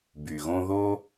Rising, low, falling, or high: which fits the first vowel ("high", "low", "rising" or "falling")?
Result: low